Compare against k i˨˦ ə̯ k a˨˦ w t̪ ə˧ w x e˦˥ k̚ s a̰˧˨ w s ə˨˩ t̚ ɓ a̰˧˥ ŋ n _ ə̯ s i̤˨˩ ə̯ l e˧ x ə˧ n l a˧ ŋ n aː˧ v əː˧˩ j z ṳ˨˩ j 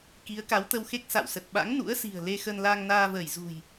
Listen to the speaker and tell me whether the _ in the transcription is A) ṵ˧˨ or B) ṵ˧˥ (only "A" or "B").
B